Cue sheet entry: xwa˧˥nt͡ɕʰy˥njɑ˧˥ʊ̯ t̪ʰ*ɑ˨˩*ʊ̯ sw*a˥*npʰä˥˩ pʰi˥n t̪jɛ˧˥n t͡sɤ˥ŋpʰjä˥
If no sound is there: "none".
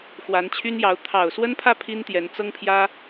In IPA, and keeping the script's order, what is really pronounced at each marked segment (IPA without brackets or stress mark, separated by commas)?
ɑ˨˩, ə˥